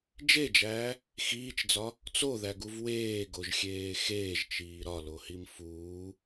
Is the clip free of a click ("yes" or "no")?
yes